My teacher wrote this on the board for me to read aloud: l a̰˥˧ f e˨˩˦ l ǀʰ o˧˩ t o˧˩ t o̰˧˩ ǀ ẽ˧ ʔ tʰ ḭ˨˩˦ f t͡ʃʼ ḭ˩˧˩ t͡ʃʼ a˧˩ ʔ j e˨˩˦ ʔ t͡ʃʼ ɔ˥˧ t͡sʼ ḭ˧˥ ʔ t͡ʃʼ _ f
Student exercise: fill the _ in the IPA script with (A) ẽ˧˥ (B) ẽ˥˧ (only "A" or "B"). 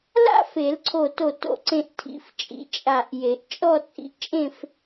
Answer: B